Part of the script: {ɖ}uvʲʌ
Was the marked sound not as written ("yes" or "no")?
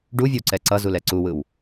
no